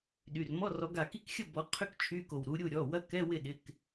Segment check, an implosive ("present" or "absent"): present